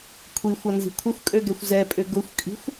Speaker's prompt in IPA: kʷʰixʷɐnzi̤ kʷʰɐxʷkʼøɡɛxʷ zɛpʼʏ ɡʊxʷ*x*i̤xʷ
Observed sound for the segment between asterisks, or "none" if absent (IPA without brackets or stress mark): kʼ